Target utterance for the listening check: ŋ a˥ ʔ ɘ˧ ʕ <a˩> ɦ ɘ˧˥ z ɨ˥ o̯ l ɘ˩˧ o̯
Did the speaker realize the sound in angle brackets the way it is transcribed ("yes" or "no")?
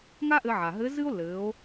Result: yes